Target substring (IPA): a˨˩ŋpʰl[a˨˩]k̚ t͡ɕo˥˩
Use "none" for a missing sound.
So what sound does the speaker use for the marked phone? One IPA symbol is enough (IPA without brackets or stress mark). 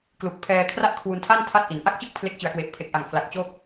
a˨˩